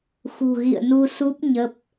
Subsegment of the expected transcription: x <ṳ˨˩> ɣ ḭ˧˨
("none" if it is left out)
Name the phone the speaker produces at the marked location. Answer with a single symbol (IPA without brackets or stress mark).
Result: ṳ˨˩